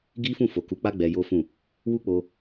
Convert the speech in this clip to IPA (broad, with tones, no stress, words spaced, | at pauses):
ɡi˦fũ˦˨ fo˨ku˨˦k͡pa˦ ɡ͡bɛ˧jo˦fũ˦˨ | wu˦k͡po˧